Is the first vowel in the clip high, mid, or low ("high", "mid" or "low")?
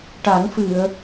low